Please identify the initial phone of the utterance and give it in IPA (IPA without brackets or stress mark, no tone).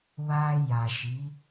w